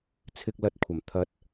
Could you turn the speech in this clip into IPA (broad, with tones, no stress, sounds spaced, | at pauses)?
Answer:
t͡sʰ ɪ˧ k̚ l ɐ˧ t̚ kʷʰ ɐ˨˩ m t̪ʰ ɐ˨˥ t̚